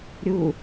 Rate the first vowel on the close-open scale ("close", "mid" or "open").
close